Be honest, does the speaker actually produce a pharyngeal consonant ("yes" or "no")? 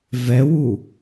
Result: no